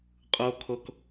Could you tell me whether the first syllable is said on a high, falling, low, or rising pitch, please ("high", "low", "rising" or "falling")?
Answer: high